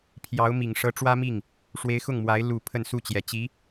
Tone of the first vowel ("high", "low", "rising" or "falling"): rising